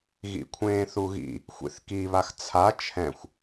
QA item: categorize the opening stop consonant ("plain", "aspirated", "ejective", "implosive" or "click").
aspirated